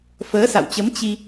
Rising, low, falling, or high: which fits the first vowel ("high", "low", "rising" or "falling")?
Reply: rising